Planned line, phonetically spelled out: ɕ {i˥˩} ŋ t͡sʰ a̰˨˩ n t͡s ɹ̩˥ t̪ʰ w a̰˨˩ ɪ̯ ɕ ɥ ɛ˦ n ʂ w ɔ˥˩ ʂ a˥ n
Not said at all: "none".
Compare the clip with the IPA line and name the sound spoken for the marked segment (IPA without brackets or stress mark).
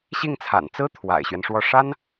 i˥˩